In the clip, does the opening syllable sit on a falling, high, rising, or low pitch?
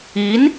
rising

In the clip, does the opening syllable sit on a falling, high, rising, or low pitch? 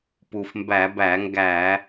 low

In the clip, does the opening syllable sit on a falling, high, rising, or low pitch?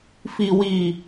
low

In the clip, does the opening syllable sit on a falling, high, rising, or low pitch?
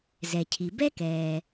low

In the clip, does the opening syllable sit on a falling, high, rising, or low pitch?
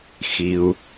low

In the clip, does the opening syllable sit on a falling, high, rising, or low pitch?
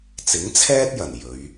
rising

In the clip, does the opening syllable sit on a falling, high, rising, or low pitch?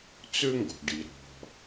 high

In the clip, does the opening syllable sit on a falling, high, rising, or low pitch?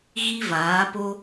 high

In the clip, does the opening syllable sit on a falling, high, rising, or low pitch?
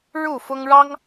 falling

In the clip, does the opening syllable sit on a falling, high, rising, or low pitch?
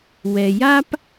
low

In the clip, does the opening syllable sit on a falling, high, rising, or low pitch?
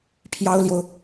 high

